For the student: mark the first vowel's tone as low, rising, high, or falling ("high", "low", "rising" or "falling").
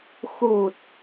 low